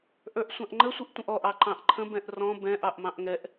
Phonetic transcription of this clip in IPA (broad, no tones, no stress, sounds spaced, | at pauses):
ʔ ə˞ ʔ sʷ ɑ̃ ʔ ŋ͡ǃ ə sʷ i ʔ tʷ ə̃ ʔ ɔ ʔ ɑ ǃ ɑ̃ ʔ ǃʰ ə̃ b ɛ̃ ʔ r ɔ̃ b ɛ̃ ʔ ɑ ʔ m ɑ̃ ʔ ŋ ɛ ʔ